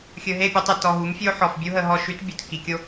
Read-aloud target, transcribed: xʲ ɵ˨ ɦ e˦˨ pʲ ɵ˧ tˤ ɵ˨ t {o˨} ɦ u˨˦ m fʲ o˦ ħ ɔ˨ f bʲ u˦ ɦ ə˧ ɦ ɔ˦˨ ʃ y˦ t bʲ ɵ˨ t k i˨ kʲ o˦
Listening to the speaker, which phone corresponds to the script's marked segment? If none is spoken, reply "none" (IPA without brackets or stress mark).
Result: ɔ˨